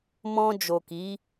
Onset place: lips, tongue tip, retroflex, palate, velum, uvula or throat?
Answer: lips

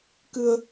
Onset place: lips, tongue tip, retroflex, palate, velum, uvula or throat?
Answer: velum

